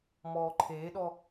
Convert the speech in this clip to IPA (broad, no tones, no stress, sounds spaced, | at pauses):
m ɔː ǃʰ eː ɗ ɔ